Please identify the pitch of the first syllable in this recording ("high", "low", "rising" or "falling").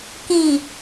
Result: low